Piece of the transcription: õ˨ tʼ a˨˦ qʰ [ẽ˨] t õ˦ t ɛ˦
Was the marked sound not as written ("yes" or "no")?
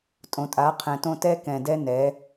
yes